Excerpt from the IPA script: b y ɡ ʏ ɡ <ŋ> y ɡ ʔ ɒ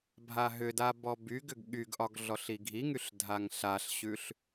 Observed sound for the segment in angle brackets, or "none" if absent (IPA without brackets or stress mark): ɠ